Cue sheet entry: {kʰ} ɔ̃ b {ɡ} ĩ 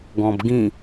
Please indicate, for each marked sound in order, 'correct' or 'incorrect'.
incorrect, correct

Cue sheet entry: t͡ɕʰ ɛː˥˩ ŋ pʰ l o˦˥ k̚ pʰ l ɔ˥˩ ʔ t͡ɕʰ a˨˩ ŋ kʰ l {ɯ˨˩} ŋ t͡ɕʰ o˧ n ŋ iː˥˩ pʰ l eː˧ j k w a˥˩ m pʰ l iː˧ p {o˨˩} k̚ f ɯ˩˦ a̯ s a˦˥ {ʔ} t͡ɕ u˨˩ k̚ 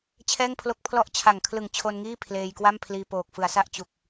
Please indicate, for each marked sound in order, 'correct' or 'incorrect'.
correct, incorrect, correct

